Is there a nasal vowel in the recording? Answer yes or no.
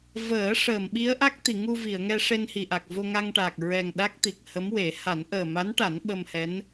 no